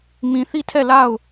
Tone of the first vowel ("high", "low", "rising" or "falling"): low